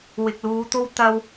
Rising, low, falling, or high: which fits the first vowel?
low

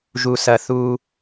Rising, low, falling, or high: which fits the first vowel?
low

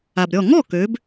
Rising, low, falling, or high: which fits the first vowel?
low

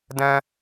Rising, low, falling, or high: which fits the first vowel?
high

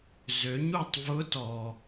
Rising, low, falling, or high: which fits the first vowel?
rising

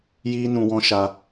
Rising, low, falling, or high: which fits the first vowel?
high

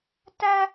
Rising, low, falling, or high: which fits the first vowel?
high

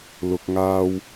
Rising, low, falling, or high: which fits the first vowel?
low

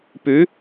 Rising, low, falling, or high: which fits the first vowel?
rising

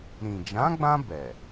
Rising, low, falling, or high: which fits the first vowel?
low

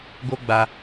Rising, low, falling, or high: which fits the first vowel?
high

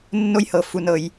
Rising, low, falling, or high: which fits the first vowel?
high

